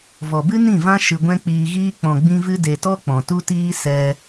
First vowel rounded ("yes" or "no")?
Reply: yes